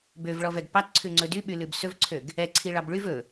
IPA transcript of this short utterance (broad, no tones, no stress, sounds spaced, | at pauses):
b ø v ɭ ɔ v ɛ ɡ p ɑ t ǀʰ ʉ ŋ͡ǀ ɵ d y ɓ y l ʉ b s ɵ v ǀʰ ø ɡ | ɛ ǀʰ i ɭ ɑ b ɭ y v ɵ